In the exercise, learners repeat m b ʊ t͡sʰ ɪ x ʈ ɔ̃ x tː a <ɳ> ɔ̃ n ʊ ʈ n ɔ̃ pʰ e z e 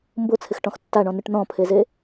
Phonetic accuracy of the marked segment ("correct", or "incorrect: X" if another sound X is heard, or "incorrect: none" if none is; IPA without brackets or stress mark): correct